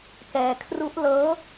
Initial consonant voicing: voiceless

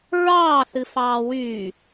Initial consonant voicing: voiced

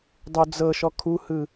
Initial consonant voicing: voiced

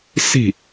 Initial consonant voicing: voiceless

